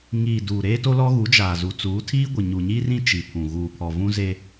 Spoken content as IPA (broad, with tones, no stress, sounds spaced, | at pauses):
ŋ iː˨ d uː˨ ɾ eː˦ t o˦ l ɔ˦ ɣ u˨˦ d͡ʒ aː˨ z u˨ t͡s uː˨˦ tʰ iː˦ ɡʷ ɪ˨ ɲ u˨ ɲ i˦ r ĩ˦ t͡ʃ i˨ pʰ ũ˨ ɣ uː˨ pʰ ɔ˨ v ũ˦ z e˦